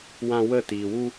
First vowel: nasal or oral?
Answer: nasal